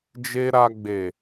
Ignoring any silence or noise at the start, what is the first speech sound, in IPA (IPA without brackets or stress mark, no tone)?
d͡ʒ